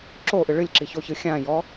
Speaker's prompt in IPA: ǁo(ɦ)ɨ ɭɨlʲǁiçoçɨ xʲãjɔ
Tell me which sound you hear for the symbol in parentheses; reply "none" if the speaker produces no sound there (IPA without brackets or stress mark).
ʔ